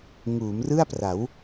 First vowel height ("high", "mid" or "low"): high